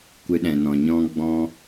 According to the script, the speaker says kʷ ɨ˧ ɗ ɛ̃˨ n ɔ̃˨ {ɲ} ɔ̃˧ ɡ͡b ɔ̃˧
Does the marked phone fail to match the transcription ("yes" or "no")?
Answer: no